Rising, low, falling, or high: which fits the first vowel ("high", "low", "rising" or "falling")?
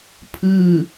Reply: falling